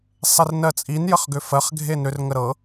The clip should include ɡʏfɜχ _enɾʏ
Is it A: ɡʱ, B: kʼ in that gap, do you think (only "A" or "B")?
A